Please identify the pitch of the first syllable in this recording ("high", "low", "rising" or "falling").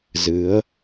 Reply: rising